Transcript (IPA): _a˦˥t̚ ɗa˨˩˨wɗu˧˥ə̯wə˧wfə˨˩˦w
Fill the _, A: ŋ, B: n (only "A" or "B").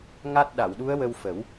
A